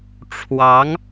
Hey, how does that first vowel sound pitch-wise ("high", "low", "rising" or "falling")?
rising